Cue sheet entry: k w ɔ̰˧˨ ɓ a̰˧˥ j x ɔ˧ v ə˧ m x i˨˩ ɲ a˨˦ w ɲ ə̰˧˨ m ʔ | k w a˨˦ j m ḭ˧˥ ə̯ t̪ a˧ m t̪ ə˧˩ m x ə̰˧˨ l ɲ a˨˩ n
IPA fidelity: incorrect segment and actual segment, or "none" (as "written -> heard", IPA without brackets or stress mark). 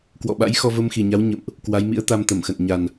l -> n